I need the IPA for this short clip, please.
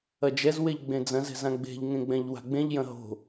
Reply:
ɐ d͡ʒ ɛ z w e ʎ ɡ͡b ẽ d͡z ɐ̃ z ɛ̤ z ã ɡ͡b e̤ ʎ ŋ ẽ ɡ͡b ɛ̃ ʎ w a̤ ɡ͡b ẽ ʎ j ɐ̃ ɦ o̤

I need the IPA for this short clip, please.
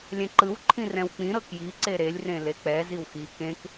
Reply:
lʲ ɛ̃ ǃ ɯ w ǃʰ ĩ r ɛ̃ w k͡p ĩ ɾ ɤ k j i ǀ e ɾ e lʲ r ẽ l e k͡p ɛ z i w x i k ẽ k

